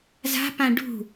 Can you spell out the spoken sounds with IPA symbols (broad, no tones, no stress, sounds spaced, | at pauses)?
z a̤ p ã ɖ ṳ